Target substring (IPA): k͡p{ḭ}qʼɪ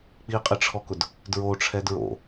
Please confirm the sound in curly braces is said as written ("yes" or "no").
no